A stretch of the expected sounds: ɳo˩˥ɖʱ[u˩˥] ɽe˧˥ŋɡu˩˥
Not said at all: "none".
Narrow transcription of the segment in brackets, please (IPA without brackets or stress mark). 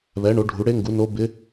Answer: u˩˥